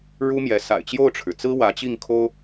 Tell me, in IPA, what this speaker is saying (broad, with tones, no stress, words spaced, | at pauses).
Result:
ɻu˥mjɛ˧˥ sa̰˨˩ɪ̯t͡ɕjo˥˩ʊ̯ʈ͡ʂʰɻ̩˩t͡sɹ̩˥ wä˧˥t͡ɕi˥˩ŋ kʰo˥ʊ̯